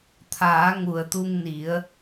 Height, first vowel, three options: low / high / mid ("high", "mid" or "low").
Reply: low